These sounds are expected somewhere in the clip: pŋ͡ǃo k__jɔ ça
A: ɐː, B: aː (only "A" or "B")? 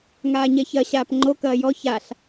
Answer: A